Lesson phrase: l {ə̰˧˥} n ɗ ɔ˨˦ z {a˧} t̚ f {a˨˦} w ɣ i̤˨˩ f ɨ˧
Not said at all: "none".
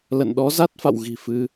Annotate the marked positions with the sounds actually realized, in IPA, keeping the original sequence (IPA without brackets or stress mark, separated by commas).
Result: ə̰˧˨, a˦˥, a̰˧˨